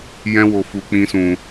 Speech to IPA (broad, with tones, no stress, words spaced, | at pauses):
jɛ̃˦wo˧fu˧ k͡pĩ˦sũ˧